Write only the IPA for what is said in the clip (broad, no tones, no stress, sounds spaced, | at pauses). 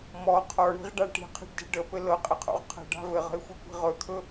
m ɔ qʰ ɔ ɳ i̤ ʁ ɖ a ʈ i̤ qʰ e̤ ɖ d e̤ ɖ ə p ɘ l ɤ qʼ ɪ qʰ o̰ ʁ qʰ ə̤ ɖ a̤ v ɘ ʁ ə̤ ɪ̯ xʷ e kʷ i̤ ʁ ɵ t̪ʰ ɵ